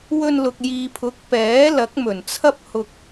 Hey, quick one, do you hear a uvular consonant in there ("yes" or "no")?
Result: no